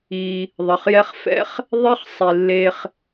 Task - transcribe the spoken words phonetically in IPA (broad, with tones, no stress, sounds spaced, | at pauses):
i˨ | ðˤ ʌ˩ χ j ɛ˦ χ f ɛ̰˥ χ | ðˤ e˥ χ sˤ i˩ lː e˨ χ